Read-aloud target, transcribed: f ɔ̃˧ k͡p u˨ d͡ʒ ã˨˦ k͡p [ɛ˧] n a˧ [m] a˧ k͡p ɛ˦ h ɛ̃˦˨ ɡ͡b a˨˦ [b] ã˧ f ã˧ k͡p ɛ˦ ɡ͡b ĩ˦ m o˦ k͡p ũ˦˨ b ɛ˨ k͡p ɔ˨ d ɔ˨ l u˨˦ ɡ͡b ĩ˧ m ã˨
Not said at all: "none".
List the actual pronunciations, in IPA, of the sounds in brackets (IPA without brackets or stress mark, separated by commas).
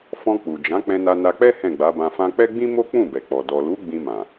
ɛ̃˧, n, b